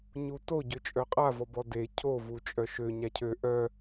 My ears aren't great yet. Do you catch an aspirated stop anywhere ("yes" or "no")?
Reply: yes